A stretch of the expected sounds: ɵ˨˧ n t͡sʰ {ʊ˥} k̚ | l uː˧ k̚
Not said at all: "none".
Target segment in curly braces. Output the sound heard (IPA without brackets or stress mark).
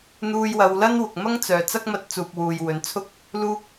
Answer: ʊ˥